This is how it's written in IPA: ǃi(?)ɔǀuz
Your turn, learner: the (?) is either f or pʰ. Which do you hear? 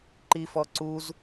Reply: f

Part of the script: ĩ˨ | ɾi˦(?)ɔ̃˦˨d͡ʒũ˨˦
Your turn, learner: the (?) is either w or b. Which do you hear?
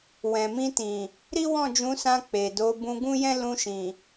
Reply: w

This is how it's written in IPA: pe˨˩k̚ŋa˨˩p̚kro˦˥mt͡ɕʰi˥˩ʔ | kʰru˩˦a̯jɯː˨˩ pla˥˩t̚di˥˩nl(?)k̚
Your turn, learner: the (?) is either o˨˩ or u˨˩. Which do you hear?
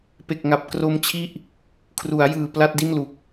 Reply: u˨˩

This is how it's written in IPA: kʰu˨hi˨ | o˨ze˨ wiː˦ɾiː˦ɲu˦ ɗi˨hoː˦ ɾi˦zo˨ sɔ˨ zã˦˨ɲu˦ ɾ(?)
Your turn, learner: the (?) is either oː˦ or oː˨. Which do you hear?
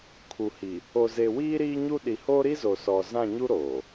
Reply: oː˨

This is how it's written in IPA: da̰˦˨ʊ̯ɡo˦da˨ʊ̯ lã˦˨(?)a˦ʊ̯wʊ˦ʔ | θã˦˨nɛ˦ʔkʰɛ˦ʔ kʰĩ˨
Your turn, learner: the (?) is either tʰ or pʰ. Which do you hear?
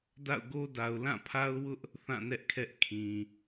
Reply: pʰ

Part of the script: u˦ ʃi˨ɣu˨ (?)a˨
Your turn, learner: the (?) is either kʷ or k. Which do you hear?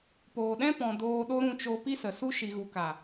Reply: k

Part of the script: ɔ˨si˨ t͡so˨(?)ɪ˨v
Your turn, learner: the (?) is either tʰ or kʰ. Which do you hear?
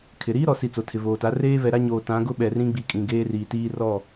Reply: tʰ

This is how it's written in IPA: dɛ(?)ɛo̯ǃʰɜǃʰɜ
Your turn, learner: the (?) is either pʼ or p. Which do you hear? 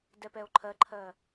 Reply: p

